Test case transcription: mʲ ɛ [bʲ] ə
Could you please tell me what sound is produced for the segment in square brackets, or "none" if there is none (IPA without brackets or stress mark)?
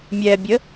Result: bʲ